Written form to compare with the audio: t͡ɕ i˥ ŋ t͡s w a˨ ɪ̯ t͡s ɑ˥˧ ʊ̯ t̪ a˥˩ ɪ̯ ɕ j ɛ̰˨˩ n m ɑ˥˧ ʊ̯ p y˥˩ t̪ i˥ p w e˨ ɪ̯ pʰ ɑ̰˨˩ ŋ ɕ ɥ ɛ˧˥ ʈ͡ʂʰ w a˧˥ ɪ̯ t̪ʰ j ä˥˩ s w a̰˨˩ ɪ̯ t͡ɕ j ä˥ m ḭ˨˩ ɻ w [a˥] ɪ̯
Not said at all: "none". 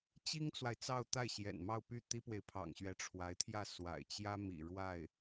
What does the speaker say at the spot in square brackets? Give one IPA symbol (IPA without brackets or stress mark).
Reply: a˥˩